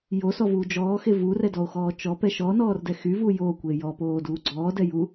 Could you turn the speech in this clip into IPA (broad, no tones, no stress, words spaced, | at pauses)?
josɔvuː d͡ʒɔːxe vurɛdɔo̯xɔː t͡ʃɔpɛ ʃɔnɔːrdɛ xyvu joːkʷe jɔpoːduː ɡ͡ǀɔːdɛju